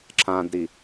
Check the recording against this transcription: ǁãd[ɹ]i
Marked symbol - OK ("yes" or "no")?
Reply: no